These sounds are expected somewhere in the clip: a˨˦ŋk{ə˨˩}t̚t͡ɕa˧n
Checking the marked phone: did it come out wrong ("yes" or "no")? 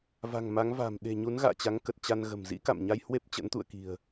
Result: no